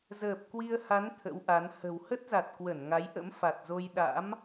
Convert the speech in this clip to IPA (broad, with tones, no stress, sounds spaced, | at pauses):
z əː˨˩ p̚ k w i˧ ə̯ h a˨˦ n t̪ʰ ə̰˧˥ w ʔ a˨˦ n h ə̤˨˩ w h ə˦˥ t̚ z a˨˩ t̚ k w ə˧˩ n ŋ a˨˦ j ʔ ə̰˧˥ m f a˨˩ t̚ z o˧ j ɗ a̰˧˥ m